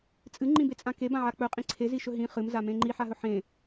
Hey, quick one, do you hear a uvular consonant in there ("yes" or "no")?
yes